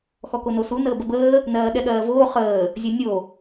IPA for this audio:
x ɔ k o n o s u n əː b ə b əː | n ɜː ɠ ɛ ɠ ɜː v oː χ əː | zʲ ɛ nʲ o

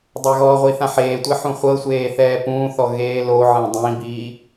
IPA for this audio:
dˤ a ɣ ɔ ʁʷ i θ ã ħ eː tʷ e ħ ũ χʷ ɤ sʷ eː θ ɛː p ũː θ ɔ ɣ eː l o ʕ ẽ dˤ ĩ b iː

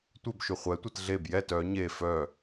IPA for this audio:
tʷ e b ʃ y χʷ ɛ tʷ e t ɮ e b j ɛ t œ ɲ e f œ

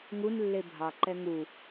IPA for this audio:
ŋ u n lː e bʱ ɑ ǃ ɛ ŋ u

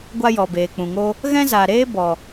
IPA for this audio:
ɡʷ a˦ j ɔ˨ b eː˨ k͡p ũ˨ ŋ o˦ | ɣ ɛ̃˦ z a˨ ɾ eː˦ b ɔ˨

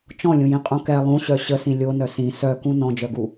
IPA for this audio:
t͡ʃ ɔ̃ lʲ ũ j ĩ qʼ ũ k ɛ lˠ ũ ɕ œ ɕ ə s ĩ lʲ o n œ s ĩ s œ k ũ n ɔ̃ d͡ʒ œ ɡ u

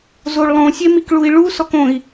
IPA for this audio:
z o ɭ lˠ õ sʲ e m i k ɭ u i̯ ɭ u s ɔ k õ i̯

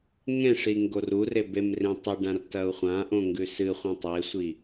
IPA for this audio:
ŋ ẽ ʂ i ŋ ɡ o r u r e b e m r ẽ tˤ ɨ ɖ ã r t ɐ u̯ χʷ ã ʔ õ ŋ ɡ ʉ s ɨ χʷ ẽ tˤ e sʷ i

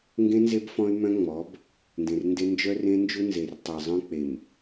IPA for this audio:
ŋ ɡ ẽ˦ n z e˦ b f ɔ̃˦ y̯ m œ̃˦ ŋ͡m ɔ˨˦ b | n d ẽ˨ r n d e˦ n d͡ʒ œ˦ r ẽ˦ n d͡ʒ u˦ n z e˨ r tˤ e˨ zˤ œ̃˦ k͡p e˨ m

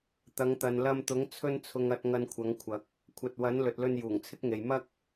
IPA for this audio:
t̪ ɐ˨˧ ŋ t̪ ɐ˨ n l ɐ˧ m t̪ ʊ˨˥ ŋ t͡sʰ ɵ˧ n t͡sʰ ʊ˨ ŋ ɐ˨ t̚ ŋ ɐ˨ n kʷʰ ɐ˨˥ ŋ kʷʰ ɐ˨˥ k̚ | kʷʰ ɐ˨ t̚ w ɐ˨˥ n l ɵ˨ t̚ l ɵ˧ n j uː˨˩ ŋ t͡sʰ ɪ˥ k̚ ŋ e˨ j m ɐ˧ k̚

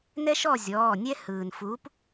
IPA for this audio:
n ɛ˦ ʃ ɔ˦˨ zʲ ɔː˩˧˩ nʲ ɛ˦ h ɯː˩ n f uː˨˥ p

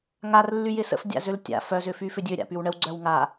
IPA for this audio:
ŋ a r lː y j ɪ s ə̰ f dʲ a̰ z ø l tʲ a̰ f œ z ʏ f y f ʏ dʲ ø ɾʲ a̰ p y w ɳ ə w ɡ͡ǀ œ w ŋ a

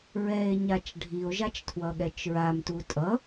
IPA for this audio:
ɹ ɛ e̯ ɲ a t͡ʃ ɖʱ i o̯ ʒ a t͡ʃ tʰ w ʌ ɠ ɛ t͡ʃ ɹ a m t u tʼ ʌ

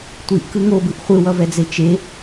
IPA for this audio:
tʷ i ʔ k ɯ ŋ o b ɯ ʔ χʷ ɯ w ʌ v ɛ d͡z e t͡ʃ e

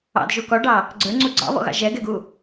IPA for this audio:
ɑ̰ d ʒ u k ɔ ɖ ɑ | ɡ͡ǀ ə˞ ŋ͡ǀ u ɡ͡ǀ ɑ̰ β ɔ̰ ɣ ɑ̰ ʒ ɛ ɡ ɛ ɡ u

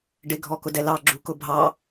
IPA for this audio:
ɖ ɪ ɡʱ ɔ k ʊ d ɛ l ɑ ɡ͡ǁ u k ʊ bʱ ɑ

